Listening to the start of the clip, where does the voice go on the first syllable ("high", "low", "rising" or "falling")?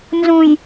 low